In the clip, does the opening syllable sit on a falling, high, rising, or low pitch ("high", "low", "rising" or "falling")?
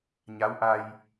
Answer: rising